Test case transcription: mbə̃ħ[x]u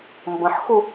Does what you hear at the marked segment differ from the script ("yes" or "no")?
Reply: no